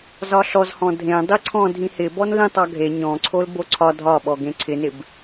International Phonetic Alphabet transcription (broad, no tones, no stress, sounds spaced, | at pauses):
z ɒ ɬ ɔ z h ɔ̃ dʱ ẽ dˤ i ǀʰ ɔ̃ dʱ ĩ h ɪ b ɔ n l ĩ tˤ ɒ ɡʱ e ɲ ɔ̃ ǀʰ o l b o ǀʰ ɒ dʱ ɒ ɓ ɔ ɡ ẽ ǀʰ ɪ n ɪ b